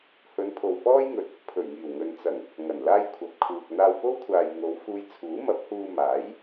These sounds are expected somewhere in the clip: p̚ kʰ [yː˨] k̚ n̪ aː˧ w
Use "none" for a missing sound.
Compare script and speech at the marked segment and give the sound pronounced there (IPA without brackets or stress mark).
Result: uː˨